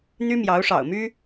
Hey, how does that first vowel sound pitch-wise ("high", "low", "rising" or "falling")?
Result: high